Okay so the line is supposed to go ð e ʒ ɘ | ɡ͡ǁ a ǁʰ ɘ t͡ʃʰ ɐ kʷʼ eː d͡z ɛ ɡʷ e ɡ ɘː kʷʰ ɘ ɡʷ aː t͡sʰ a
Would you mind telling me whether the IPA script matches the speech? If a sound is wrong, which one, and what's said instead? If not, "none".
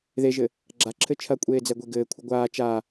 t͡sʰ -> t͡ʃ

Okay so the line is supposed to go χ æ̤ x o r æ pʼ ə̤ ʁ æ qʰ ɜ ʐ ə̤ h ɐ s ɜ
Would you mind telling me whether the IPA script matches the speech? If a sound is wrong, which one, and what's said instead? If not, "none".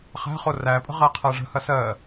x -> χ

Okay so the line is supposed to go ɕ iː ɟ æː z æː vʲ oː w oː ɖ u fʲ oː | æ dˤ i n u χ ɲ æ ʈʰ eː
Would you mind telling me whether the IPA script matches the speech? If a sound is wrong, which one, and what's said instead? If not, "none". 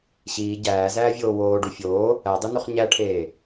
none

